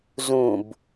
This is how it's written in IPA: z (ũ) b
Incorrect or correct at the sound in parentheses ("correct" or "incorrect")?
correct